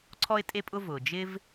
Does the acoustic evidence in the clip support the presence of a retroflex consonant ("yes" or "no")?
no